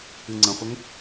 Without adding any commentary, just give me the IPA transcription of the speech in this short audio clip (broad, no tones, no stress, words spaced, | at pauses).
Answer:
ɨŋ͡ǀə̃χʷəŋ